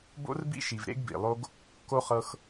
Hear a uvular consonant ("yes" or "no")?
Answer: yes